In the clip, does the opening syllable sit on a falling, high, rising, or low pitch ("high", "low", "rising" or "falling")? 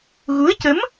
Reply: rising